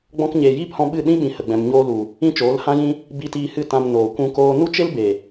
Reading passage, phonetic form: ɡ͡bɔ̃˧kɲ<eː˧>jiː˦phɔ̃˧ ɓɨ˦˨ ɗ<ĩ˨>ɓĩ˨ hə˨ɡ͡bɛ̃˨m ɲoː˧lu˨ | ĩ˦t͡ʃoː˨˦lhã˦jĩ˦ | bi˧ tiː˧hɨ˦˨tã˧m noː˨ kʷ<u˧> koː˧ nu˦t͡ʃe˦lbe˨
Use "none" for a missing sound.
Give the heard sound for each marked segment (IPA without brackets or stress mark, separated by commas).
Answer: eː˨, ĩ˦, ũ˧